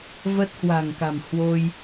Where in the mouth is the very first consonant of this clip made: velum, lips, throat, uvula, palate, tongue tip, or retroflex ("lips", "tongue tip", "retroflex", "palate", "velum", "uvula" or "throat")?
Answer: lips